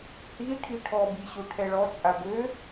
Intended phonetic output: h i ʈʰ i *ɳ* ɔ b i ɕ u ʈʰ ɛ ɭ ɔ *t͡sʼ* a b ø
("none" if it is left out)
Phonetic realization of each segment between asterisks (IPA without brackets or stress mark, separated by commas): ʈʰ, t͡sʼ